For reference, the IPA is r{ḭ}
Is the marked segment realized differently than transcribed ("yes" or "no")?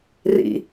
no